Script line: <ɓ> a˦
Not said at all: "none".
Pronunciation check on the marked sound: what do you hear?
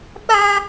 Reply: ɓ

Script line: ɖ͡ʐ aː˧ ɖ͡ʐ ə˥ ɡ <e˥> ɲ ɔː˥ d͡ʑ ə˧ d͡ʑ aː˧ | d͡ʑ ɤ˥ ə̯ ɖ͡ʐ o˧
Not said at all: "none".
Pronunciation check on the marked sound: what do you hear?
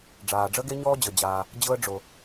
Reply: e˥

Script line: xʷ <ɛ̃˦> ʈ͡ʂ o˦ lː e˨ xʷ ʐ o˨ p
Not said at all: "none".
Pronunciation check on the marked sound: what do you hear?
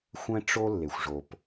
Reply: ɛ̃˦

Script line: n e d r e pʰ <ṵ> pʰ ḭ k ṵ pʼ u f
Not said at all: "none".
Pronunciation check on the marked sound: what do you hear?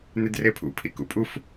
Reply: ṵ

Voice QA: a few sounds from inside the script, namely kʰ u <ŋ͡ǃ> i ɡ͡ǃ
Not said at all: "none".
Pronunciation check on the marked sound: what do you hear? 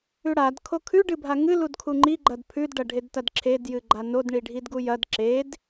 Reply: ŋ͡ǃ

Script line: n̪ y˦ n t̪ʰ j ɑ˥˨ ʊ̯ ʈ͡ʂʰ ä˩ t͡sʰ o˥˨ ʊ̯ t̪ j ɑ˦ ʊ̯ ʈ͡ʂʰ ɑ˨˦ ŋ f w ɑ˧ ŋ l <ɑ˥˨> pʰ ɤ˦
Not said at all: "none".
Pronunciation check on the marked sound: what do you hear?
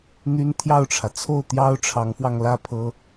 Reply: ä˥˨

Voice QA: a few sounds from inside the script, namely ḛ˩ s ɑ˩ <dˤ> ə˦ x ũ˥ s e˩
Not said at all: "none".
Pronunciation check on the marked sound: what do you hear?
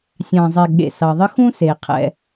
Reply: ðˤ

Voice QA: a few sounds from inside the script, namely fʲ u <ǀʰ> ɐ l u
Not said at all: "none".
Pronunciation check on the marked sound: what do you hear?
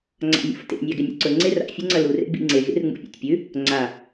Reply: ŋ͡ǀ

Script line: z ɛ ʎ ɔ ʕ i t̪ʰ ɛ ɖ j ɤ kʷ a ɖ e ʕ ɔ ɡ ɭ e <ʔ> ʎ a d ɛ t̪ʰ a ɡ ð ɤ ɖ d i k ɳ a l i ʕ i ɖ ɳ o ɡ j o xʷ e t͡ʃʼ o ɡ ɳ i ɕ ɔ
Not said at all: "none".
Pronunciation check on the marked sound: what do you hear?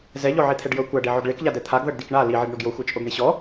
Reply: k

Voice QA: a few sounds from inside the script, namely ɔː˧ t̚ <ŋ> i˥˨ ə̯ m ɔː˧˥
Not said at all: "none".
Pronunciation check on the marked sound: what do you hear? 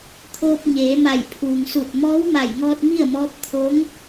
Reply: m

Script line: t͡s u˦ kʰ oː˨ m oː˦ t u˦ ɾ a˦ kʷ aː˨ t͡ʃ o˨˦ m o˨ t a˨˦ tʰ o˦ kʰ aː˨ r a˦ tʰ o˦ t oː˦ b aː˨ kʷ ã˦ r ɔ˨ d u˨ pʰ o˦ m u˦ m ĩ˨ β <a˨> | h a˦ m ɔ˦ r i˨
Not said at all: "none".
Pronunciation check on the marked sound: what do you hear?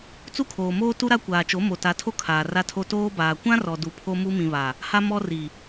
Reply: a˨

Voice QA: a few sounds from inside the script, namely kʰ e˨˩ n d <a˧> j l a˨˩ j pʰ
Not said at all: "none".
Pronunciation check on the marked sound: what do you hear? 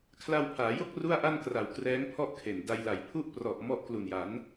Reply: a˧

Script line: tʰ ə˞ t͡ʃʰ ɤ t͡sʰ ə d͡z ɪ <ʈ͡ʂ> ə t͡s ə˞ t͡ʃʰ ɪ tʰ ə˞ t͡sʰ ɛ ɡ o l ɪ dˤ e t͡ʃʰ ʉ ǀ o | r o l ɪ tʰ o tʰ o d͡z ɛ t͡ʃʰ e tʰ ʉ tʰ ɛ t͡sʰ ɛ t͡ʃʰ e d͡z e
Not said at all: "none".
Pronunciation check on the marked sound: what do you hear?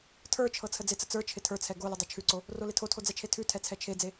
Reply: t͡s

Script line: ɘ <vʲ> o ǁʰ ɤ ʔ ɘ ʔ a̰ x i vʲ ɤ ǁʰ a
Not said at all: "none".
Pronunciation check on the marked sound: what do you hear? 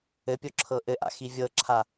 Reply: pʲ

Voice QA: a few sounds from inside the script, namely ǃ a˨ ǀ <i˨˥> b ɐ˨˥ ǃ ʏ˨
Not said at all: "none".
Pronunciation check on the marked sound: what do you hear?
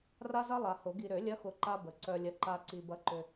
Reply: i˨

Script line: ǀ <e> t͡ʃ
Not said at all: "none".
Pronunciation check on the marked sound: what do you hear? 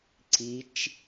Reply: i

